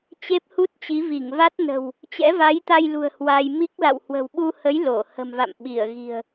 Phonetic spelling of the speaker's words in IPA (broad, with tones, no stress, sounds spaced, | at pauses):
t͡ɕ e˦˥ p̚ h u˦˥ t̚ t͡ɕ i˨˦ v i˧˩ ŋ v a˦˥ t̚ n ə̤˨˩ w | t͡ɕ ɛ̰˧˥ v a˨˦ j t̪ a˧ j l ṳ˨˩ ə̯ h w a˧ j m i˦˥ k̚ l a̰˧˨ w h w ə̤˨˩ w ɓ u˧ h ə˨˦ j l o˧˩ h ə̤˨˩ m v a̰˧˨ m ɓ i˧˩ ə̯ ɣ i̤˨˩ ə̯